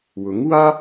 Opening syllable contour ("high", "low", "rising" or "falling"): rising